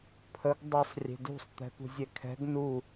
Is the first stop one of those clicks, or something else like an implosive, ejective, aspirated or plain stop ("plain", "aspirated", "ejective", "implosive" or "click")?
aspirated